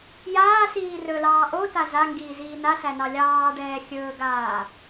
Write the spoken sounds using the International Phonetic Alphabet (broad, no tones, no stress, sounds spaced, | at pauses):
j aː s iː r ɵ l ɑː ʔ o t a z a ŋ ɡ iː z iː n a s æ n ɑ lʲ ɑː ɖ ɛː xʲ ɵː ɡ aː